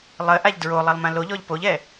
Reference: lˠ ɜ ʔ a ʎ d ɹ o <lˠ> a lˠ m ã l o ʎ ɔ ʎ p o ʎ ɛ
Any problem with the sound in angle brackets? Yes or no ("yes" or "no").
no